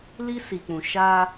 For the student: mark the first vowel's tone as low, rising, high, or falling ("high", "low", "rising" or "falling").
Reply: high